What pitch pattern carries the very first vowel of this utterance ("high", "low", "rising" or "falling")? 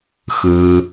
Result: low